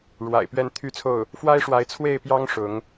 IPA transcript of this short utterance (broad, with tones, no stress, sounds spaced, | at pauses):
ɻ w a̰˨˩ ɪ̯ p ɥ ɛ˥˩ n t̪ʰ y˥ t͡sʰ o˥˩ ʊ̯ | f w a˥ ɪ̯ ʂ w a˧˥ ɪ̯ t͡sʰ w e˥˩ ɪ̯ p j ɑ˥ ŋ ʂ ʊ˧˥ ŋ